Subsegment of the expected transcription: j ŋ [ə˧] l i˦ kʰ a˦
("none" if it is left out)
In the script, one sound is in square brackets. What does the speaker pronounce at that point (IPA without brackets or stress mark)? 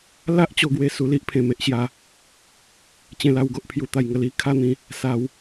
ə˧